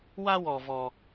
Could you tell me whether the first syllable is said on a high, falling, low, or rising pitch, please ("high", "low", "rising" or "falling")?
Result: high